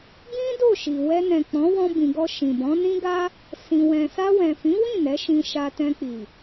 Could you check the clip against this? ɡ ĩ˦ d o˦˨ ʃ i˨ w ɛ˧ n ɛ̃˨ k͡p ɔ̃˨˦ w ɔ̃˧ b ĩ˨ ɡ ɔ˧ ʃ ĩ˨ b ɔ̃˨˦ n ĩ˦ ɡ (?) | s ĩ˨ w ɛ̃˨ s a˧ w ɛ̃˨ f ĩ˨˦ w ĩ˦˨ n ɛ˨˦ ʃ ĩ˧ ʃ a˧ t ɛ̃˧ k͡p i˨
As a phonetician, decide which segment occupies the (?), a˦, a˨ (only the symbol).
a˦